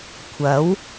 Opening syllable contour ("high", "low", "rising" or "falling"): rising